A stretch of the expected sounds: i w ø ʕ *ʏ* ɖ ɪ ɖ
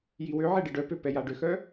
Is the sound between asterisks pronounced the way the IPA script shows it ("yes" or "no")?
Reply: no